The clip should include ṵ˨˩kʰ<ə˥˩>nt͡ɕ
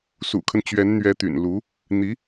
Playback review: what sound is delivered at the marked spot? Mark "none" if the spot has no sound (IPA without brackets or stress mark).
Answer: ə˦